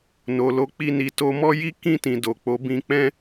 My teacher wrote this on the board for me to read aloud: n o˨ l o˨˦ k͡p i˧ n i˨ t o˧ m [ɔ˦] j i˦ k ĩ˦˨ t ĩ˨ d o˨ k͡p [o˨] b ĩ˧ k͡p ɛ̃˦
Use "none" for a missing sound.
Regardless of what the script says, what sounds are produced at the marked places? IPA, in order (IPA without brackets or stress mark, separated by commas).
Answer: ɔ˦, o˨˦